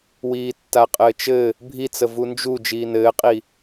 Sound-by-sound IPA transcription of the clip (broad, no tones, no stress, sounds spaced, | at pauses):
w iː tː a qʼ ɘː t͡ʃ ɘ | bʱ i t͡s ə v u n d͡ʒ u d͡ʒ iː n ɘː qʼ i